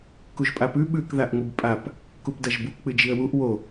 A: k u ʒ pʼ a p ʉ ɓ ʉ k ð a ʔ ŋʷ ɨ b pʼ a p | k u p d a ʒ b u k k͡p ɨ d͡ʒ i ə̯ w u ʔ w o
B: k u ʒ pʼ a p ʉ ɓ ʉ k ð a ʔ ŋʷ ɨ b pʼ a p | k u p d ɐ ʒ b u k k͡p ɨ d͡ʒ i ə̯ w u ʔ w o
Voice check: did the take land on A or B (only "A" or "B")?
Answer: B